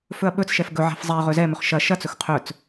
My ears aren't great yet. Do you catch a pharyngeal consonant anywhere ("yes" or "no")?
yes